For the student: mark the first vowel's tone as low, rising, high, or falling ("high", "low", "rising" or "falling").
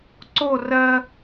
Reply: falling